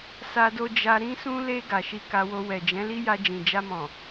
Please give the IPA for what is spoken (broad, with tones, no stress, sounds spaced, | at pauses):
s a˧ d o˧ d͡ʒ a˧ ɾ ĩ˧ s ũ˧ l e˧ ɡ a˨ ʃ i˧ k a˧ w o˧ w ɛ˨ d͡ʒ ɛ̃˨˦ l i˦ j a˧ d͡ʒ ĩ˨ d͡ʒ a˧ m ɔ̃˨